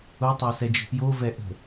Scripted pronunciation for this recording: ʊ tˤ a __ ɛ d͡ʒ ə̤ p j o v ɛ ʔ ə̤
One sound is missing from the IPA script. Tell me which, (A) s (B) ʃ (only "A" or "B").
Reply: A